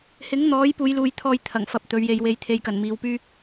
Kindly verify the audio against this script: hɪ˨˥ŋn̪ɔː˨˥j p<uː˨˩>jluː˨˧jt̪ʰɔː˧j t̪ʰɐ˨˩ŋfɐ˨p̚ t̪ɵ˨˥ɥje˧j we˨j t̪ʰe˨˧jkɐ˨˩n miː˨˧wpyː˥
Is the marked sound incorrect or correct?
incorrect